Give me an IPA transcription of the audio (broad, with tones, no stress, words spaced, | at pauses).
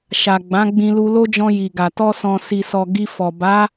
ʃa˨ɡ͡bã˨˦ɡ͡bĩ˧ lu˧lo˦d͡ʒɔ̃˧ ji˨ɡa˨ tɔ˧sɔ̃˨ si˨sɔ˨ ɡi˧ fɔ˨ ba˨˦